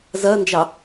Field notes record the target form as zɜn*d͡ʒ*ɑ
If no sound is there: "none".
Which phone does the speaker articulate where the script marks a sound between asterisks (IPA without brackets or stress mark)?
d͡ʒ